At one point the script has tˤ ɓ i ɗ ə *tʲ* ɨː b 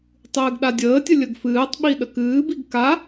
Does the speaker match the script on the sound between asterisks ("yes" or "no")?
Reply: no